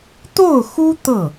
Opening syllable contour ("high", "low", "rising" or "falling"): falling